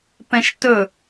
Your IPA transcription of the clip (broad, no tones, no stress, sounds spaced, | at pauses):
p ɛ̃ ʃ t ɵ